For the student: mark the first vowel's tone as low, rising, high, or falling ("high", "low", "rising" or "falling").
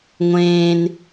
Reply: high